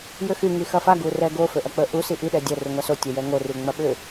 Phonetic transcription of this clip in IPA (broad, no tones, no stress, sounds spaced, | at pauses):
j ʏ x y ŋ i x ɐ f a ɡ u r ɛ ɡ o f ø ʔ ɐ k͡p ə ʔ u s i ʔ i ɗ ɛ dʲ ɐ r u ŋʷ a s o tʲ ə j ɛ ŋ o r y ŋ͡m ɐ ɓ ʏ